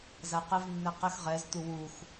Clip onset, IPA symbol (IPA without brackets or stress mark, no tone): z